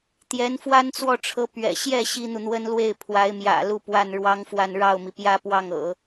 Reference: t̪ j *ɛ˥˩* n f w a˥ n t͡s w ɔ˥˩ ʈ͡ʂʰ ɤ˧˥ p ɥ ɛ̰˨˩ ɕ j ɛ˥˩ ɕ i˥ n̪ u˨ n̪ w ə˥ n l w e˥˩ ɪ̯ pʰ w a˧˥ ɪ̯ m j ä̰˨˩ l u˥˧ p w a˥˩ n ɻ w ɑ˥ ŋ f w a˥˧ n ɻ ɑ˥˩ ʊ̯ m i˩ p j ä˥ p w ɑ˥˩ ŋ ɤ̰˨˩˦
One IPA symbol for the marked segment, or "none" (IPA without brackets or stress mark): ɛ˧˥